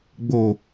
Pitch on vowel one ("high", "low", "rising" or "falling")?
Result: low